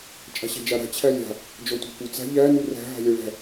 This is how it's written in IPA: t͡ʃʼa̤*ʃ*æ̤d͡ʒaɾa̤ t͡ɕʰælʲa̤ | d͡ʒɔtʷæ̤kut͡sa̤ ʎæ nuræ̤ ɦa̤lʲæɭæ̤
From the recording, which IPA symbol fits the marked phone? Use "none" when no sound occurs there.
ɕ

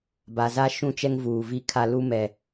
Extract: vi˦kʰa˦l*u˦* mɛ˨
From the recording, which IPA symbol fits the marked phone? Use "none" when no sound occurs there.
u˦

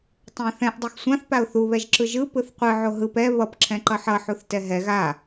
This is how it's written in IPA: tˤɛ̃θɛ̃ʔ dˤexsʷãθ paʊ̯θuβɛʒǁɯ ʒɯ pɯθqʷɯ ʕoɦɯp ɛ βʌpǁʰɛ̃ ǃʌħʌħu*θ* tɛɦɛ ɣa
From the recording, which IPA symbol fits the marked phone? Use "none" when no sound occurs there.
θ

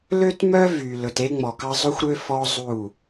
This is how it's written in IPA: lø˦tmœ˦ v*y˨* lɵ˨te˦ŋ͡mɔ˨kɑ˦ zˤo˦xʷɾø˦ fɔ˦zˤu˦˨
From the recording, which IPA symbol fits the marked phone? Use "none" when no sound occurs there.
y˨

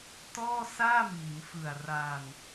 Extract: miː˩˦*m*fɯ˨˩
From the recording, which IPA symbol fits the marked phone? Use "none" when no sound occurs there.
m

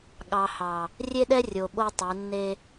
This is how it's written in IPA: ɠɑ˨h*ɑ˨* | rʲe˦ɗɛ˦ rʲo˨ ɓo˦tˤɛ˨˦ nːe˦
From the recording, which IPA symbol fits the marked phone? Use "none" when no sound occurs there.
ɑ˨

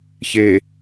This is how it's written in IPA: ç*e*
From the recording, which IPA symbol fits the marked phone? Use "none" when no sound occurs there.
e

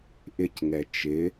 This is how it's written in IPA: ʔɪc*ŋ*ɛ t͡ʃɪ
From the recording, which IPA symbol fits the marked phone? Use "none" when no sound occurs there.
ŋ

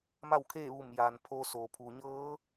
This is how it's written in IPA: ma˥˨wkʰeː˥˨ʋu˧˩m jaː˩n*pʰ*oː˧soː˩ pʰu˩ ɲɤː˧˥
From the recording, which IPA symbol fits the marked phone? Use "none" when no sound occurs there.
pʰ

